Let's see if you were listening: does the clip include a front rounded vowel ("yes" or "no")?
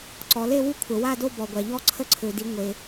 yes